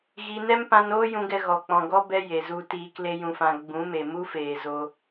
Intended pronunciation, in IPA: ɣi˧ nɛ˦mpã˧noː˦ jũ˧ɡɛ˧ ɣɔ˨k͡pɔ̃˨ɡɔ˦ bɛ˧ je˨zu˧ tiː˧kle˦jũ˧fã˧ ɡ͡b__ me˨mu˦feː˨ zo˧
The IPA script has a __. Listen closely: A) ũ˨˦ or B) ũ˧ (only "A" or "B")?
A